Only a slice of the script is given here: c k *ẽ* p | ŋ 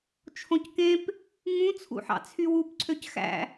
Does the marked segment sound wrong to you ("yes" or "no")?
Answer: no